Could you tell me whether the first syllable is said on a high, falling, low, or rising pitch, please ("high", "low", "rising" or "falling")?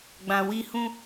low